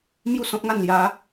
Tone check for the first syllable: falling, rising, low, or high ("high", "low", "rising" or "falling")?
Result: falling